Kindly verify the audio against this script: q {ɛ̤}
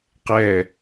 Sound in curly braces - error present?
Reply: yes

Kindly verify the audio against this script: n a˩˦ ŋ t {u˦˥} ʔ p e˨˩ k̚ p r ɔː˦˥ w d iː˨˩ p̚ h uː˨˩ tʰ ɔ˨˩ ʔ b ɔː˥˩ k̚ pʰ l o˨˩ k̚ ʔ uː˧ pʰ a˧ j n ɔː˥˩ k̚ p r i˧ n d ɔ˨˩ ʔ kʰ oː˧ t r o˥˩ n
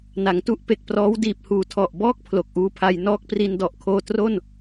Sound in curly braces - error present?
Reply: no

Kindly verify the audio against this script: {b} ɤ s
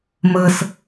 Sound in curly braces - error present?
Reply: yes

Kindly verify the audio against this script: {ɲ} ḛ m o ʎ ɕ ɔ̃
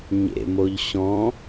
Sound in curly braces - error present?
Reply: no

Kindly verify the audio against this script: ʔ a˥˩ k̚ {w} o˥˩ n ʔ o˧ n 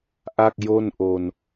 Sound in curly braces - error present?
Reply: yes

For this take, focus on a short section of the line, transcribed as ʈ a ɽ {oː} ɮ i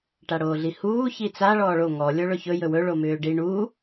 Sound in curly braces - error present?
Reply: no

